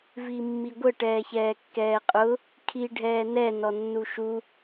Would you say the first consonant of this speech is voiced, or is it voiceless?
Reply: voiced